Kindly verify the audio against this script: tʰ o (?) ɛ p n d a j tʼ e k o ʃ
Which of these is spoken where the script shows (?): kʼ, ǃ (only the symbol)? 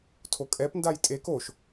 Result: kʼ